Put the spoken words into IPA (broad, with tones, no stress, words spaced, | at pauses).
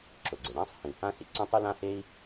ǁʊ˩ɡ͡ǀɪ˩ɽã˥sˤ hĩ˩ hã˥sḭ˩ ǀɐ̃˥tˤy˥lã˥he˥i̯